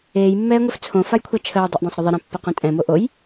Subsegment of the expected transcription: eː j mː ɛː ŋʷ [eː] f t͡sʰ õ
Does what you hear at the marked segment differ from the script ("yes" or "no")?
yes